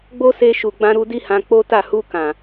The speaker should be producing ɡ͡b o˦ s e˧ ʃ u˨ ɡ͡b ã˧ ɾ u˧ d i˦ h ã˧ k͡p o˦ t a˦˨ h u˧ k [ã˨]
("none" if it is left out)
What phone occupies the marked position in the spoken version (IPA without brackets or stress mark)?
ã˨